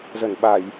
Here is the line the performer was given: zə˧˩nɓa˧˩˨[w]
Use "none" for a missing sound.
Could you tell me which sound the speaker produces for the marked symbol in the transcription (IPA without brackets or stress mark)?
j